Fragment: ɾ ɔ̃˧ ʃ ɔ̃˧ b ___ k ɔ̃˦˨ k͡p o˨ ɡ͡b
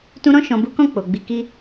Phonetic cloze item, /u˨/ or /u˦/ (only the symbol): u˦